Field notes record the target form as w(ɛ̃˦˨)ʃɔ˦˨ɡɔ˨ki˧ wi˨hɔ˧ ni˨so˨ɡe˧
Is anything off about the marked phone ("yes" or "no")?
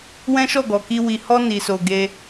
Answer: yes